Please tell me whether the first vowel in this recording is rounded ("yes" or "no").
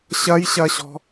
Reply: no